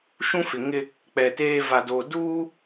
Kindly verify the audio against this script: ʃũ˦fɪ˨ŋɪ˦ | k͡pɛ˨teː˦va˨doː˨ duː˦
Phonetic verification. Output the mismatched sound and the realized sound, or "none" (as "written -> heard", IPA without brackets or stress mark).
none